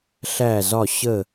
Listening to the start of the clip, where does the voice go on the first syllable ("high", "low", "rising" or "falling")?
falling